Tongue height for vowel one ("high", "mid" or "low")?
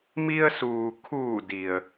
high